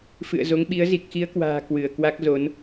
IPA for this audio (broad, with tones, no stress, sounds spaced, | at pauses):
f ɨ̰˧˨ ə̯ z o˨˦ ŋ ɓ i˨˦ ə̯ z i˨˩ k̚ x i˨˦ ə̯ k w a̤ː˨˩ k w ɨ˧˩ ə̯ k w a˦˥ k̚ z o˨˦ n